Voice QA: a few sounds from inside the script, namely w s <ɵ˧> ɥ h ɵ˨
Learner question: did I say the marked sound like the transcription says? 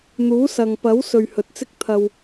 no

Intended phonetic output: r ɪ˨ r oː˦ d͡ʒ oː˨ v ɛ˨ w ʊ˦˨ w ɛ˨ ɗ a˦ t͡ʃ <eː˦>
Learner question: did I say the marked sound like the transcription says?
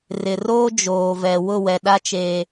yes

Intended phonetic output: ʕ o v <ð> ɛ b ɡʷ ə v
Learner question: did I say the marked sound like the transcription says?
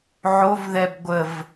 yes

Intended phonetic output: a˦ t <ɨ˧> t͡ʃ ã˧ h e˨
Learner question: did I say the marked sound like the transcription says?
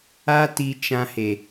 no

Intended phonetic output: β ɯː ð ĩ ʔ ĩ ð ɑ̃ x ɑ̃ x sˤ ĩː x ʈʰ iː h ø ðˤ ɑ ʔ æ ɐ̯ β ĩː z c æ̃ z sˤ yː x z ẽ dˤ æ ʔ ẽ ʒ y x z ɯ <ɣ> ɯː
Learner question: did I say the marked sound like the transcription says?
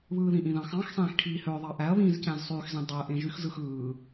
no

